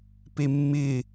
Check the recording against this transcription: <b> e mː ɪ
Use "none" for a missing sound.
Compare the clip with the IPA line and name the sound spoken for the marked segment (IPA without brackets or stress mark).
p